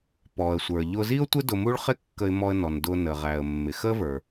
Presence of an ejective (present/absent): absent